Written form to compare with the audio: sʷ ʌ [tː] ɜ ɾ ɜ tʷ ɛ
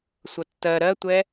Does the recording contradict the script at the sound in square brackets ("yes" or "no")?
no